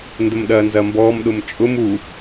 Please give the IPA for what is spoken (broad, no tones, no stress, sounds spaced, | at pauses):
n d ə m ɗ ɐː n z ɐ m b ɔː m ɗ ʊ m t͡ʃʼ ʊ m u